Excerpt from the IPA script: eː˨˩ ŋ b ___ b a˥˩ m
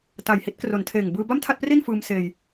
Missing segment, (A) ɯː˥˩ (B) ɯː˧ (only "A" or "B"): B